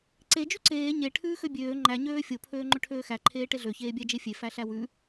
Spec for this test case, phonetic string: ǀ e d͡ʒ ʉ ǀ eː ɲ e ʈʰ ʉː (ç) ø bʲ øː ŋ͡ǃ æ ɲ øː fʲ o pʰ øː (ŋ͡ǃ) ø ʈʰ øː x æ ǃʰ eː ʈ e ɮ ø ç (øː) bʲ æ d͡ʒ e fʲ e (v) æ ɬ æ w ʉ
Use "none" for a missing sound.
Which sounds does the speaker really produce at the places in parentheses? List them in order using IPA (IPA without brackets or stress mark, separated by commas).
x, ŋ͡ǃ, eː, f